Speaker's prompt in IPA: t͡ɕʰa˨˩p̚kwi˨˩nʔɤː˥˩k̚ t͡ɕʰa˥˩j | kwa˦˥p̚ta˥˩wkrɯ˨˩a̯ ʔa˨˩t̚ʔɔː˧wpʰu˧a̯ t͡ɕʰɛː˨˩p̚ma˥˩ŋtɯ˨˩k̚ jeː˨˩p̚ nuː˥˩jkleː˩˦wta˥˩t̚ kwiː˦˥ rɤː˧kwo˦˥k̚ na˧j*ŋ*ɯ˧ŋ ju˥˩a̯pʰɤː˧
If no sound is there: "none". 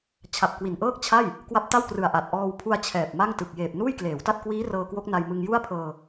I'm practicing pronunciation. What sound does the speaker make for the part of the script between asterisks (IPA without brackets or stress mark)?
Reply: m